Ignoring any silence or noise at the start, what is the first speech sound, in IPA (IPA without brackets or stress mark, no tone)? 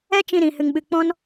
ɛ